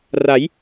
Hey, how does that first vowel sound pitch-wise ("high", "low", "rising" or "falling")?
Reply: rising